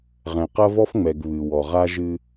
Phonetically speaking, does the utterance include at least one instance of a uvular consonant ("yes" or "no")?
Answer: yes